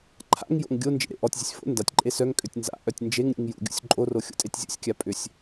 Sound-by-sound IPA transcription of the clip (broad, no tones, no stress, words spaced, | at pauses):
ǃʰa̰ŋjo̰ŋ ɡʲo nd͡ʒḛɾḛʔɔtʲzʲʊsʲ fo̰ ndatʲǃʼe sœŋkʼøtʲ nza̰ʔœtʲ nd͡ʒeŋ ɾʲṵŋjṵɡʲṵsʲ ǃʼoro xʲo̰tʼetʲzʲṵsʲkʲa pʼʏsʲ